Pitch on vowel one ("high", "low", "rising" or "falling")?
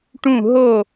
falling